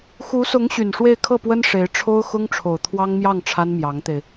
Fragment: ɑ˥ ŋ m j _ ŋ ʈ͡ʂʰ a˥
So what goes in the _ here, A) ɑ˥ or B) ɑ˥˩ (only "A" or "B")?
B